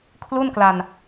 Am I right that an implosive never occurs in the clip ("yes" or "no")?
yes